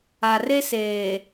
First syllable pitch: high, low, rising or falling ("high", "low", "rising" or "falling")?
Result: low